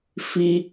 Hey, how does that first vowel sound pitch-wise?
high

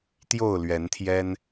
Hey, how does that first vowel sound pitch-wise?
falling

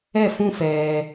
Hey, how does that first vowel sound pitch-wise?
falling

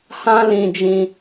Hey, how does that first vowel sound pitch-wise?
high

